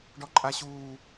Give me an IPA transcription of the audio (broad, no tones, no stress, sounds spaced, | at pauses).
ɖ ɔ ǃʼ a ɕ uː